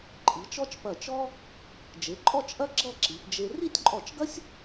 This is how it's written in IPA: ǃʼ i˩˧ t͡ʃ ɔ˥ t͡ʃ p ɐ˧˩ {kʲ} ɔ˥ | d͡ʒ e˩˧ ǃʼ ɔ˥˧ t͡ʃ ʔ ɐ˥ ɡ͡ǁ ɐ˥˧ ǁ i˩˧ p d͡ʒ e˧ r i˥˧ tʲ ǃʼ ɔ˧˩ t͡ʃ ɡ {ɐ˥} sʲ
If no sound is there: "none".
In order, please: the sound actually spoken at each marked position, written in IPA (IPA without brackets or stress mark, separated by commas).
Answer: t͡ʃ, ɐ˥